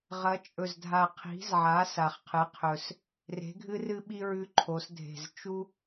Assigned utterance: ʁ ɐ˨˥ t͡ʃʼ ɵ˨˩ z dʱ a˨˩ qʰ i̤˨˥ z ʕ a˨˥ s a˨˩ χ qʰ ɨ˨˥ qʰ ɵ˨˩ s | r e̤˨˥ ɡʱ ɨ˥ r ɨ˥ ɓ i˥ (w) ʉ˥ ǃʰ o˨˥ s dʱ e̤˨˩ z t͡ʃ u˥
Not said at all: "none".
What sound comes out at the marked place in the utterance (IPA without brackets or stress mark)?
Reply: ɹ